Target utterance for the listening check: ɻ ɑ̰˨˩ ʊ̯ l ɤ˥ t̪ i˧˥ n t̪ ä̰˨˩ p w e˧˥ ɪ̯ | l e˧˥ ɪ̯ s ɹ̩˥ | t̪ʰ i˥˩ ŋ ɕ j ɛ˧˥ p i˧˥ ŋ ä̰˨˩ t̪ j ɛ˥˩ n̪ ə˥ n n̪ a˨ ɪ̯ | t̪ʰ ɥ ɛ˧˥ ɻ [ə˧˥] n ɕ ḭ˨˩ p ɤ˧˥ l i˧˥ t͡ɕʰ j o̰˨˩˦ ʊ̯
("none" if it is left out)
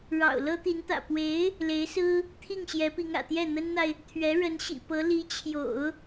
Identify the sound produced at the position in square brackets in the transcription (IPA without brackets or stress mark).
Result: ə˧˥